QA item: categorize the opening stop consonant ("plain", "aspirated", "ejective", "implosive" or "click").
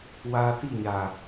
plain